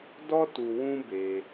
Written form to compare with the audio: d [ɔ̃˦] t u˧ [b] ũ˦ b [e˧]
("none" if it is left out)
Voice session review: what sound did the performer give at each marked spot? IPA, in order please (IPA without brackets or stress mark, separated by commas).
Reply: ɔ˦, w, e˧